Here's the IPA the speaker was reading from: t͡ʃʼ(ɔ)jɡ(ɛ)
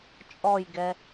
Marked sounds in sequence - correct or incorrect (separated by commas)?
correct, correct